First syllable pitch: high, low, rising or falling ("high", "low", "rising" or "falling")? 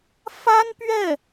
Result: high